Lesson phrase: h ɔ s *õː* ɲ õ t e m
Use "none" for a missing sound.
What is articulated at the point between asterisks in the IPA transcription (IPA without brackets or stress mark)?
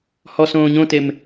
õː